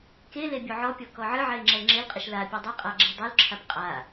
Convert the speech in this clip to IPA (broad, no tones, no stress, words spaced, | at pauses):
kele bʲoʕɔpʲɔ kɔʕɨʕɛɪ̯ ŋ͡ǁɛlŋ͡ǁelqʼɘʃ lapʲo dˤɛqʼa ɡ͡ǁedˤulǁʰap qʼa